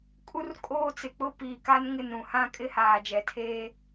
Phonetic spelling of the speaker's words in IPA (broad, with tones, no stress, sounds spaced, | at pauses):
kʼ u˦ r kʼ oː˦ t͡s ɪ˨ k͡p ʊ˦ p iː˨ k a˦ n ŋ ɪ˦˨ n ɾ ũ˨ h ã˦ kʼ ɪ˦ h aː˨ d͡ʒ ɛ˨ tʰ eː˦